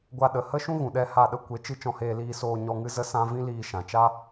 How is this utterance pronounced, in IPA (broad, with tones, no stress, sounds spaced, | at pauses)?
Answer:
ɡʷ a˦ ɗ ə˨˦ h ə˦ ʃ ũ˦ ɣ ũ˨ ɗ ɛ˦˨ h a˦˨ ɗ ə˦ kʷ e˨˦ t͡ʃ ɨ˧ t͡ʃ ɔ̃˧ h eː˧ l iː˧ s oː˧ ɲ ɔ˧ ŋ ɨ˦ z ə˦ s ã˦ v ĩ˦ l iː˧ ʃ ã˨ t͡ʃ a˦